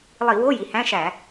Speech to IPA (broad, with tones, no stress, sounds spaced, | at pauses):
lˠ i˧˩˧ w o˧˥˧ j i˩ h æ̃˧˥˧ ʃ æ˧˩˧